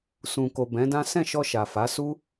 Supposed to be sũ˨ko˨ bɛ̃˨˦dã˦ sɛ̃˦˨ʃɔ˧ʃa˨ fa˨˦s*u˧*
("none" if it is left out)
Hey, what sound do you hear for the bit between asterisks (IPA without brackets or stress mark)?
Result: u˦